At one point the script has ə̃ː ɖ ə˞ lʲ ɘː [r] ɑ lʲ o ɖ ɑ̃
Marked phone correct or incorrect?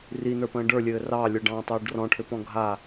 correct